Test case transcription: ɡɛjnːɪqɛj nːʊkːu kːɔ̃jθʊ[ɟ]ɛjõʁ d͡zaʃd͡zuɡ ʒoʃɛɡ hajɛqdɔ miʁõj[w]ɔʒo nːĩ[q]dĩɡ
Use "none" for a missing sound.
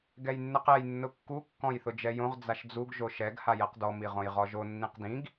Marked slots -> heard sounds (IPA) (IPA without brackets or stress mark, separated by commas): d͡ʒ, ʁ, q